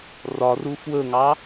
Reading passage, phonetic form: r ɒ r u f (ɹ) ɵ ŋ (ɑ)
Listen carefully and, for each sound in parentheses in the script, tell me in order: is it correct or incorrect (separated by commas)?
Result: incorrect, correct